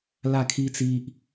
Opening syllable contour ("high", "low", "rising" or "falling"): falling